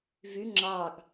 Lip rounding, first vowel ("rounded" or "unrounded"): rounded